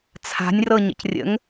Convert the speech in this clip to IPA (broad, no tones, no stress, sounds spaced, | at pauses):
t͡sʰ a̤ nʲ r ɤ ɲ ə̰ c rʲ ə̰ ŋ